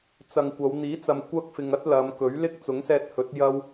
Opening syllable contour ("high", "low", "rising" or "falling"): low